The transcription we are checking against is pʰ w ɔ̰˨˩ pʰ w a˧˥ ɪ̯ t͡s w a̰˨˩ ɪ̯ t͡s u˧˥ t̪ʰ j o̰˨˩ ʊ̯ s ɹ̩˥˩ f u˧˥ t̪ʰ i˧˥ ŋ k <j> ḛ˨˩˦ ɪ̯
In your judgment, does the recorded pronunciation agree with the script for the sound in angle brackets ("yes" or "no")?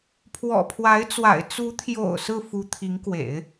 no